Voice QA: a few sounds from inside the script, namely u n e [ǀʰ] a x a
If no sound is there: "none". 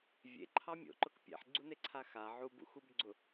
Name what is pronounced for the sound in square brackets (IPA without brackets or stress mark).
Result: ǀʰ